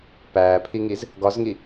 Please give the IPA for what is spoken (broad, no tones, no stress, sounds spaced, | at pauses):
p æː pʰ i ŋ i z | ɡ ɒ z ŋ i